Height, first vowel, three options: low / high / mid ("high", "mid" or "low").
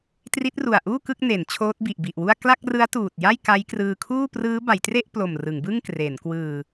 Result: high